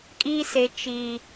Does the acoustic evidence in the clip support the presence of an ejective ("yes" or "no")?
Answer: yes